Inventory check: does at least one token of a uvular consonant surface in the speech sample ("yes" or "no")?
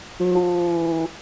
no